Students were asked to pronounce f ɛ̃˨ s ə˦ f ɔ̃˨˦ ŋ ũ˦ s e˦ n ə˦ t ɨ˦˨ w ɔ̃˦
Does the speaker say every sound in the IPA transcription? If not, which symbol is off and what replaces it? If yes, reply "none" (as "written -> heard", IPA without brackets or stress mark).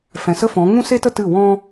n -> t